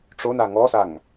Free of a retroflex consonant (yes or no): no